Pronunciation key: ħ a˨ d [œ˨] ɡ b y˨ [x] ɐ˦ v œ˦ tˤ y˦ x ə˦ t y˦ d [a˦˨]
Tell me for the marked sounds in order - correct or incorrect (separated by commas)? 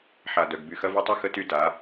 correct, correct, incorrect